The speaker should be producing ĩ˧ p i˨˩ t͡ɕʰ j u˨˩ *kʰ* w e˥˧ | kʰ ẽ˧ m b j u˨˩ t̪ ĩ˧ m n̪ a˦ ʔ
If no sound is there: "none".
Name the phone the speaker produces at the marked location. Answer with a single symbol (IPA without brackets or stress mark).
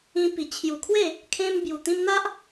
kʰ